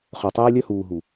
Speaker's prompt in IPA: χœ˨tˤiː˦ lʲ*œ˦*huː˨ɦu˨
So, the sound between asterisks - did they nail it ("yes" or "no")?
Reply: yes